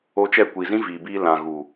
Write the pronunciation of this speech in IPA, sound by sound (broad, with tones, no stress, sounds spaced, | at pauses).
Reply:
o˧ t͡ʃ ɛ˦˨ kʷ i˨ z ĩ˦ v iː˨ b iː˧ l ã˨ ɣ u˨